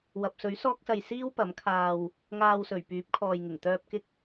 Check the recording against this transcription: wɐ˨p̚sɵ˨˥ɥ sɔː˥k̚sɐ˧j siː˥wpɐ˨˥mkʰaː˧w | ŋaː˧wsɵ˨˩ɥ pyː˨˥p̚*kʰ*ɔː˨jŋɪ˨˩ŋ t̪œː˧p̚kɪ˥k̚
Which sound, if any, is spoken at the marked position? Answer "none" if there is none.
kʰ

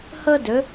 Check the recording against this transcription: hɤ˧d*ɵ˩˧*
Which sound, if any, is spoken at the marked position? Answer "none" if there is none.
ɵ˩˧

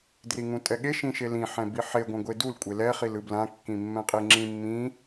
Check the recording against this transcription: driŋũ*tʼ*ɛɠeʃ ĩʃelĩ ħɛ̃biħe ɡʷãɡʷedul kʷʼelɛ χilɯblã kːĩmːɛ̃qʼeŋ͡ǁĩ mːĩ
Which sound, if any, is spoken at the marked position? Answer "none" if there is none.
tʼ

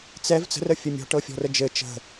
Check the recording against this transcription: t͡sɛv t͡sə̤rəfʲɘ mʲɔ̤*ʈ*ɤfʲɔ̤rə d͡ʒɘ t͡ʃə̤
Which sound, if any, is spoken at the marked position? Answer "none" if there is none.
ʈ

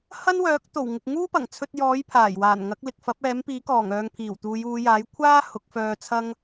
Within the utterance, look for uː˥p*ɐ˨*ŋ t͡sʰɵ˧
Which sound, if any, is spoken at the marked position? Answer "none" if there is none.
ɐ˨˩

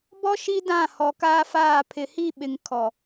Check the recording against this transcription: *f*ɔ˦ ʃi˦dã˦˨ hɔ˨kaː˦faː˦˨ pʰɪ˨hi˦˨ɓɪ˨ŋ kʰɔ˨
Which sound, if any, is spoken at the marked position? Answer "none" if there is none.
b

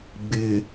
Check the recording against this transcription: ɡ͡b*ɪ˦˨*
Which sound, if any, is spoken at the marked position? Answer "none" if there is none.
ɪ˨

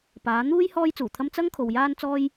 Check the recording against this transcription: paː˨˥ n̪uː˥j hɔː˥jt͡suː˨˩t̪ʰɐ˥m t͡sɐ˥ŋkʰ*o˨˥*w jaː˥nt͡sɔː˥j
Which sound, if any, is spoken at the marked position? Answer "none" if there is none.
o˨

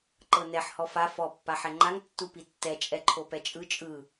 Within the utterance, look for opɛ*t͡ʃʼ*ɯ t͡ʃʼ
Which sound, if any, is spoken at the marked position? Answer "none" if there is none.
t͡ʃʼ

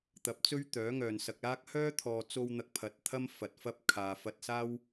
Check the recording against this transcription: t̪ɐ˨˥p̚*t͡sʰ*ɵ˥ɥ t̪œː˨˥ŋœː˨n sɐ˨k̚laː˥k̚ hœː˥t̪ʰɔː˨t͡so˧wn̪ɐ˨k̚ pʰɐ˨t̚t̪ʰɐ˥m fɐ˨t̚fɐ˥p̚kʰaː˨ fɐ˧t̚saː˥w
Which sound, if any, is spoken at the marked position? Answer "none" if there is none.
t͡s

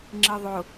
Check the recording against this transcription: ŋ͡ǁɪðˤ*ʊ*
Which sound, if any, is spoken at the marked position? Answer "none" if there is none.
ʊ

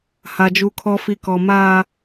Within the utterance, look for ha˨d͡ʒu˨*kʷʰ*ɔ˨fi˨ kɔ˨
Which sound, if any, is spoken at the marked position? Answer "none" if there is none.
kʰ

